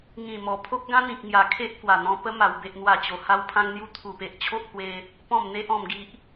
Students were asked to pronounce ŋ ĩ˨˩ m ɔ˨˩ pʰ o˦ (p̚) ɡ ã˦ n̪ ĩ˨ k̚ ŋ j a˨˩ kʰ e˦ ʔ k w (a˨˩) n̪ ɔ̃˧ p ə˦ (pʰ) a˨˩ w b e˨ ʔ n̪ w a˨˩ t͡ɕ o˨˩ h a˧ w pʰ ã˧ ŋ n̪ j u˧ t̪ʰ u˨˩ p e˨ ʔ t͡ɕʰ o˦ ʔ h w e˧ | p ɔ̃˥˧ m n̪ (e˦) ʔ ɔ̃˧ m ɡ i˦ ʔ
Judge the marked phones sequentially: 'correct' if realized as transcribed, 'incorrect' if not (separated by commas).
incorrect, correct, incorrect, correct